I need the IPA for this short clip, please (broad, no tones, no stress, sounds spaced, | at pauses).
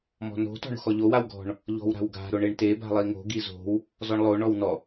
m ɔ̤ n o̤ t ɔ̤ ɳ o̤ x ɔ ʎ o w a w ɡ ɔ̤ ɳ | ʎ ɔ̤ w ɾ a̤ w ɡ a̤ ɾ o ɳ e ɳ t e b a̤ lˠ i ŋ o̤ ɡ i z o̤ w | z ɔ ɳ lˠ o ɳ ɔ w n ɔ